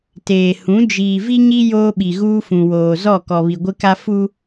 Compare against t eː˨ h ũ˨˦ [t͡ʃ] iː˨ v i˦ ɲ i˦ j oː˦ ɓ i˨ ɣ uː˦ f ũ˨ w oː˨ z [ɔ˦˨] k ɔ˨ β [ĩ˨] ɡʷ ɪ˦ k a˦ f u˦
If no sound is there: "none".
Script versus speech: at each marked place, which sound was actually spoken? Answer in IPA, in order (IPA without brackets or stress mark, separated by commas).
d͡ʒ, ɔ˦˨, i˨